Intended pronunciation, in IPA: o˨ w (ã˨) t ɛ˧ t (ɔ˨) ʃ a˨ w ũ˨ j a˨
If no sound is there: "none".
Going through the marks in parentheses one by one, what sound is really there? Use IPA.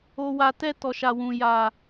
a˨, ɔ˨

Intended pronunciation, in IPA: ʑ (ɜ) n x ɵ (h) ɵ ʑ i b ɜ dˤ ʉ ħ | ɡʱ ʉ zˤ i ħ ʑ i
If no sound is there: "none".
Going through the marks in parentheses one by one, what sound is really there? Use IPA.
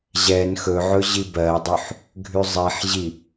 ɛ, ʕ

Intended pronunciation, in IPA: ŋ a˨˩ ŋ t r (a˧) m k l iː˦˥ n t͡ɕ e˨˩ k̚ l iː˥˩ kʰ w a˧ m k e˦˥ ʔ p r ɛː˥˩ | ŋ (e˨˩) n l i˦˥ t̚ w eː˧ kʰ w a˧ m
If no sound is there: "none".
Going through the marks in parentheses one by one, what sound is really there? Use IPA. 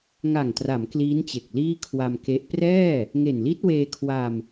a˩˦, e˨˩

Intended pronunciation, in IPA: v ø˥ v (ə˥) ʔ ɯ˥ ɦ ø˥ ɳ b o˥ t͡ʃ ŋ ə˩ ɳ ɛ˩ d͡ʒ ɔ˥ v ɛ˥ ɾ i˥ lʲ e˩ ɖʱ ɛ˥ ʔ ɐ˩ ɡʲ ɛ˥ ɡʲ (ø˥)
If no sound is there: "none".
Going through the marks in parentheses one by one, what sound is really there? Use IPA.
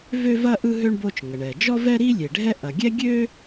ɐ˥, ø˥

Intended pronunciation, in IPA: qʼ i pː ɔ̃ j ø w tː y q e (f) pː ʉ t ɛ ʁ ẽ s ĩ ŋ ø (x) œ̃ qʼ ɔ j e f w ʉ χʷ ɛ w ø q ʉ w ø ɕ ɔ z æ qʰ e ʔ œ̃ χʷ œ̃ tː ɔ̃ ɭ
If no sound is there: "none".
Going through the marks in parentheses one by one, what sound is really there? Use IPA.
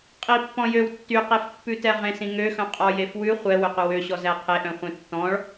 f, x

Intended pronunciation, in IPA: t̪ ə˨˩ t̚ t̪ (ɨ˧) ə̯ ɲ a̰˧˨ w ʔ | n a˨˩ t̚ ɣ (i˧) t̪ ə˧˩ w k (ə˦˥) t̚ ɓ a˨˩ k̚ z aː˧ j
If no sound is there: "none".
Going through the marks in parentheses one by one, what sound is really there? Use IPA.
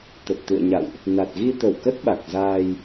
ɨ̰˧˨, i˧, ə˦˥

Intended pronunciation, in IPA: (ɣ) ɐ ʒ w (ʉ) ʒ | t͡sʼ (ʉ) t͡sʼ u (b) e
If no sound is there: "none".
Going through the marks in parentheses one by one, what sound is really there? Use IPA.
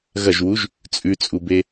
ɣ, u, ʉ, b

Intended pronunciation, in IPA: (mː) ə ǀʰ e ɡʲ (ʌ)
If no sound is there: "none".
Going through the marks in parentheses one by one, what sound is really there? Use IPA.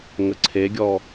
ŋ, ɔ

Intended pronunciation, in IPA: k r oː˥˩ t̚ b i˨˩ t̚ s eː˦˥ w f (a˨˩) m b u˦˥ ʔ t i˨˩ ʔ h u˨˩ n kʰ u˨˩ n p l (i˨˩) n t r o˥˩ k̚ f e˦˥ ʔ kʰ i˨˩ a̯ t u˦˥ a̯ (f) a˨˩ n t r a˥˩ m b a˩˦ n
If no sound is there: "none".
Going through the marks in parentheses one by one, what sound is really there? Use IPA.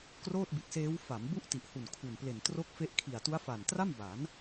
a˩˦, e˨˩, f

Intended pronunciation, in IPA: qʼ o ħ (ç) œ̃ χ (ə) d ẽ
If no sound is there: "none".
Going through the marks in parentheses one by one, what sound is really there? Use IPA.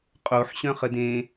ɕ, ə

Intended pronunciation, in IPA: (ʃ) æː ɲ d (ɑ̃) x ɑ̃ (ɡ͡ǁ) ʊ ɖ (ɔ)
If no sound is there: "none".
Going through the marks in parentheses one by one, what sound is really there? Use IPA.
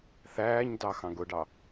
θ, ɑ, ɡ, ɑ

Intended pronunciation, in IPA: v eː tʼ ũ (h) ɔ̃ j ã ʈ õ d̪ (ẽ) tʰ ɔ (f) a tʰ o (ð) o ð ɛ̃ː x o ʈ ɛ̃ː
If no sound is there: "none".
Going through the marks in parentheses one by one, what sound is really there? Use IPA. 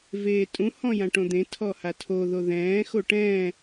h, ẽ, h, ð

